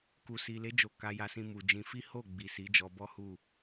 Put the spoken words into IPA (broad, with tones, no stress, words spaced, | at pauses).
ku˨si˨le˨˦ d͡ʒo˧ka˧ja˧sĩ˧ mu˨d͡ʒĩ˧ fi˦ ho˦˨ɡ͡bi˨ si˨˦d͡ʒɔ˧bɔ˦ hu˦˨